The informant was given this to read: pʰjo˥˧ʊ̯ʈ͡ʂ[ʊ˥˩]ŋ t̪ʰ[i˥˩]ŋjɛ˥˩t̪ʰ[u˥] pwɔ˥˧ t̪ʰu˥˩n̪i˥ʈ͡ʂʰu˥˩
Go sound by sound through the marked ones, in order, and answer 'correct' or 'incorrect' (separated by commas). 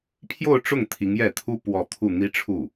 correct, incorrect, correct